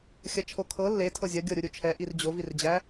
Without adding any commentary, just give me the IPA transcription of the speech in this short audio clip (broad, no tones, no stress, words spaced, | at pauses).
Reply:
xʲɐt͡ʃʰokʰɤ lːe tʰɤzʲɐ ɡʲɤɾʲuɾʲut͡ʃʰɛ ʔird͡ʑo vird͡ʑæ